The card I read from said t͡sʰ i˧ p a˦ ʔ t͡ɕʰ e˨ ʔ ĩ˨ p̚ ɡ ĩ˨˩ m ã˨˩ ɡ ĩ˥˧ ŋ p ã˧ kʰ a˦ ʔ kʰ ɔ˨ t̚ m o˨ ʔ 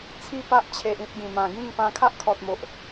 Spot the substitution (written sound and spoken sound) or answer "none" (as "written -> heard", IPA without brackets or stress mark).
i˧ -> i˥˧